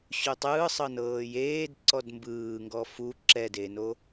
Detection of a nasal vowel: absent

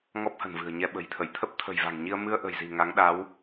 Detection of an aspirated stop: present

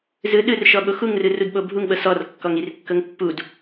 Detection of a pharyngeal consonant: absent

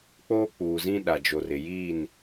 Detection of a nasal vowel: present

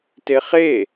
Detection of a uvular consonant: present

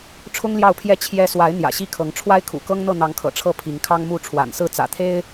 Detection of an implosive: absent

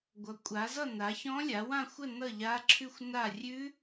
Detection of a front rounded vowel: absent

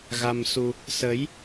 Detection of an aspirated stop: absent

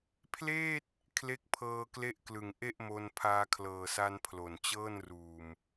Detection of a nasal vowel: absent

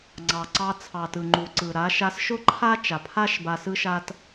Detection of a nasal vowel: absent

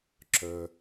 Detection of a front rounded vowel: present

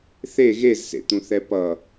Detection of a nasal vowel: present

